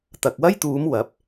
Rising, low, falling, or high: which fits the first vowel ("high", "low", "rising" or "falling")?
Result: low